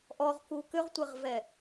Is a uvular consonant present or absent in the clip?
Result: present